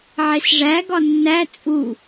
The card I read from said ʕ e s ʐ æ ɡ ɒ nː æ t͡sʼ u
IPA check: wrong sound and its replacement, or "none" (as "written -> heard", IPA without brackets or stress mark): none